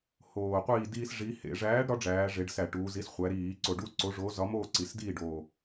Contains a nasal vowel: no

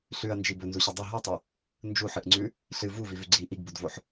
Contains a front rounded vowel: no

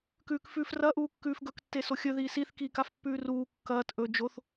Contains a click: no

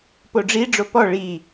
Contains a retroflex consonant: yes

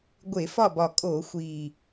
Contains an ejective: yes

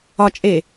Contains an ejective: yes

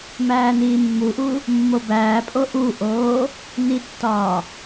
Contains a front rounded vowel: no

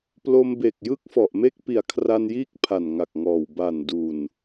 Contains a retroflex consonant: no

